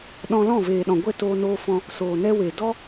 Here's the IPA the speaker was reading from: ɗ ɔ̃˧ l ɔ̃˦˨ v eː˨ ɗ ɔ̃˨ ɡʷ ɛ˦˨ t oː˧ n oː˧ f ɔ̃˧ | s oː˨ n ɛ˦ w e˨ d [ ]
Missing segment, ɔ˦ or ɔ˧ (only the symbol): ɔ˦